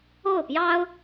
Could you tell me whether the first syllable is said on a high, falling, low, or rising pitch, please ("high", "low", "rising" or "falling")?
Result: falling